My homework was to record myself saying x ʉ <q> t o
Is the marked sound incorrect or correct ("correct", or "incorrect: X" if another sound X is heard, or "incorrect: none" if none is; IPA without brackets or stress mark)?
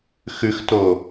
incorrect: x